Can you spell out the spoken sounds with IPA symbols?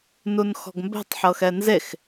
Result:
nunxɔ̤ɡmbɛ̤tˤ ħɤxɛnzex

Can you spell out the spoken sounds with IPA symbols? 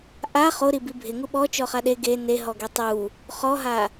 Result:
ʔa χoɾibi bʱɪŋu ɓɔt͡ʃɔχa ɗe ɡe neɦɔɡe tˤu | χɔɦa

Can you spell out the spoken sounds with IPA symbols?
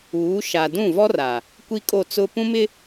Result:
uː˨˦ ʃa˨dũ˦˨vɔ˦r a˨ | kʷi˦kʼo˦˨ t͡sʊ˦ pũ˦mɪ˦

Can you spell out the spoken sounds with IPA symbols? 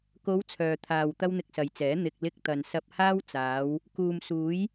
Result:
ko˨˧w t͡sʰœː˨t̪ʰaː˨w t̪ɐ˥wn̪ɪ˧k̚sɐ˨jt͡sɛː˨˥ n̪ɪ˨k̚lɪ˧k̚t̪ɐ˨n sɐ˧p̚haː˥wt͡saː˨˧w | kuː˨msuː˨˥j

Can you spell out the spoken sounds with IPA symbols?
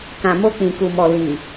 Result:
kã˨ mo˧k͡pĩ˨ku˨mɔ˨ li˨

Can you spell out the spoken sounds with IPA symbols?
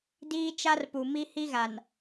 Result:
diː˦t͡ʃa˦rpu˨ mi˦hi˦ɣa˨n

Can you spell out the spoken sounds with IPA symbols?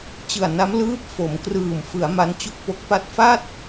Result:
t͡ɕɯ˨˩a̯na˦˥m lɯː˦˥p̚ fo˩˦mkrɯː˨˩m fɯ˩˦a̯ ma˦˥nt͡ɕu˥˩k̚po˦˥k̚pa˥˩t̚ fa˥˩t̚

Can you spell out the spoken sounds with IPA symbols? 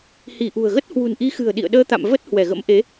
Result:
hi˧˩ʔṳ˨˩ə̯ɣə˦˥t̚ hwṳ˨˩nʔi˨˦xɨ̤˨˩ə̯ ɗḭ˧˨ə̯ɗəː˧t̪a̰˧˨m və˦˥t̚ hwɛ˧˩ɣə̰˧˥m ʔe˨˦

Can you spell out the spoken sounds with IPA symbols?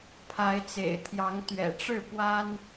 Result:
pʰa˨˦ɪ̯t͡sḛ˨˩ɪ̯t̪ʰjɑ˨˦ŋ t̪ɥɛ̰˨˩ʈ͡ʂɻ̩˥˨ pwa˦n

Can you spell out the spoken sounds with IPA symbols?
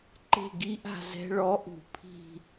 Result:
ǃe̤˥˧ɡi˦˥ʔa̤˥˧ zɛ̤˧ɭɔ˨˥ ʔṳ˨˥pʰi̤˥˧

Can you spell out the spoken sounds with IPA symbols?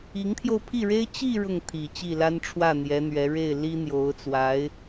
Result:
i˧˥ŋt̪ʰjo˧ʊ̯pʰi˥˩ɻe˥ɪ̯ t͡ɕi˥˧ ɻʊ˥˩ŋt̪ʰi˨˩ t͡ɕi˥˩la˥nʈ͡ʂʰwä˥˩ n̪jɛ˧˥n̪ɥɛ˧˥ ɻe˥˩ɪ̯ li˥n̪jo˧˥ʊ̯ t͡swa˧˥ɪ̯

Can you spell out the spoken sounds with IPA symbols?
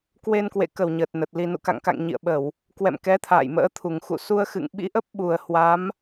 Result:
kwe˧nkwḛ˧˨kə˧˩w ɲəː˨˩t̚nə˨˩t̚ li˨˩nṵ˧˨ka̰˧˨ŋka̰˧˨ŋ ɲḭ˧˨ə̯ɓə˧˩˨w | kwɛ̰˧˨mkɛ˨˦ t̪ʰa̰ː˧˨jmə̰ː˧˥ t̪ʰu˨˩ŋxṵ˧˨ su˧ə̯xɨ̰˧˨ŋɓḭ˧˥ʔə˦˥p̚ ɓu˨˩ə̯hwa˨˦m

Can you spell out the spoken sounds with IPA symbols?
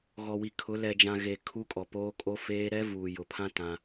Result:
ɣɔ˨wi˨kʰʊ˨˦ lɛ˨d͡ʒã˨ɣe˨ kʰu˦kʼɔ˨poː˦kʼo˦ feː˦ ɾɛ˦vuː˨jʊ˨pʰã˦ tã˦

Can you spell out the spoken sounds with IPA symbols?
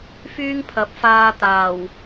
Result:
fyː˥ŋpʰɐ˨˥p̚faː˧ t̪aː˨˩w

